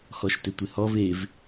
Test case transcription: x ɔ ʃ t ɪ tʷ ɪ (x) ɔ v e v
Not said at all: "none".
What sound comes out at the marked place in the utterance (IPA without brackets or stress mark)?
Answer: h